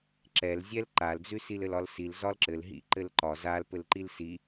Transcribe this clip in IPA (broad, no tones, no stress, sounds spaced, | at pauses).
ǁ ɛ l zʲ ɛ l ǃ a l d͡z ʉ s i l ɘ l ɒ l s i l z ɒ l ǁ ɘ l ɦ ḭ ǃ ɘ l ǃ ɒ z a l p ɘ l ǃ i l s i